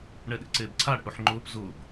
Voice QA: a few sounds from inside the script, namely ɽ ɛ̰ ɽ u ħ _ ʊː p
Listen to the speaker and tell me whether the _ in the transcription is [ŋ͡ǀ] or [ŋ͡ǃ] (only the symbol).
ŋ͡ǃ